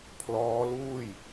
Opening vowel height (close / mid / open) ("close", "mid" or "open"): mid